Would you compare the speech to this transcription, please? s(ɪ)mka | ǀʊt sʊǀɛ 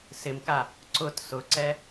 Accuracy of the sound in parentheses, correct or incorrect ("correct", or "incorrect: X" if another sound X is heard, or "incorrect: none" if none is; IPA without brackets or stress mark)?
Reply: correct